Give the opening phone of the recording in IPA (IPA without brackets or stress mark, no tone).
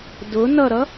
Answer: d